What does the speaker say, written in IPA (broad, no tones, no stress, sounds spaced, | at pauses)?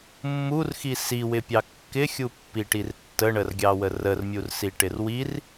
mː u r x i s i w ɪ pʲ ɑ kː ɪ xʲ u pː i ʈ i r tː ə ɳ ə r ɡʲ ɑ w ə r ə r mʲ u r s i ʈ ɪ r w i r